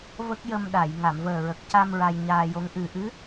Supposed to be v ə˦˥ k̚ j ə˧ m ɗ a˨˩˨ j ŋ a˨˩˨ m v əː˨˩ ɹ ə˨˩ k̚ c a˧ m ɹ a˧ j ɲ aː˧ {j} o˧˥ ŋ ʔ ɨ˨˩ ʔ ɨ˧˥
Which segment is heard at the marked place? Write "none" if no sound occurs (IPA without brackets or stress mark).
j